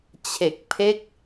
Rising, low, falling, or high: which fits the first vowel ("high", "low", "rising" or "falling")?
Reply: low